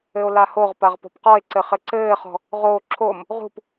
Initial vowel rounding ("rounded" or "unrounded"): unrounded